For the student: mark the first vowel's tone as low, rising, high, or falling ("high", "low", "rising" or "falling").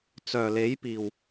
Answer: low